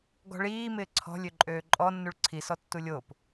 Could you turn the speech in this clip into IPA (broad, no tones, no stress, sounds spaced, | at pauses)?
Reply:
ɡ ɔ̤ ɭ iː m ɪː ǀʰ ɔ̤ lʲ ø ǃʼ øː ǃʼ ɔ nː u ɭ ǀʰ i s ɔ tː u lʲ o p